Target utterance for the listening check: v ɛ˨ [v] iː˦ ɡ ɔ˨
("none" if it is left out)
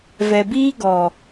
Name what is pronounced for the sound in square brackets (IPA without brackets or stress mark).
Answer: b